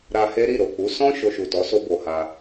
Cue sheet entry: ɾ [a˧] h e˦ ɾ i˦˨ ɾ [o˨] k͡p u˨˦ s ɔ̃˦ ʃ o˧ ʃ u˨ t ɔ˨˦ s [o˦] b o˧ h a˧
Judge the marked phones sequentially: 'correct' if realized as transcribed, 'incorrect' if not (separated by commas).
correct, correct, correct